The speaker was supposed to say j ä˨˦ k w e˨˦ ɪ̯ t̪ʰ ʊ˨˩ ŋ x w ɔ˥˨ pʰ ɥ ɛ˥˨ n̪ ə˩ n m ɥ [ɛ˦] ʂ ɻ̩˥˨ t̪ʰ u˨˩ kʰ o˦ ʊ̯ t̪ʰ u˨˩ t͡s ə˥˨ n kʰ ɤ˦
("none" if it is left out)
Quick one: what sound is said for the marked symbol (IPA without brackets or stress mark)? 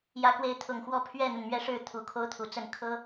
ɛ˦